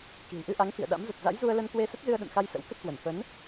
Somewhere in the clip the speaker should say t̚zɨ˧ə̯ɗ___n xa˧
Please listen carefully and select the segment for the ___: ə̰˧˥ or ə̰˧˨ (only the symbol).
ə̰˧˨